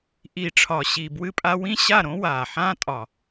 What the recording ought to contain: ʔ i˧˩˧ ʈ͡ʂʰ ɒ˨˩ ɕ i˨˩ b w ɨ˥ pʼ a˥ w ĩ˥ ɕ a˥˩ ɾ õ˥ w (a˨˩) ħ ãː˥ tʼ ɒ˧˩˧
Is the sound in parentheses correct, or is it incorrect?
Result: incorrect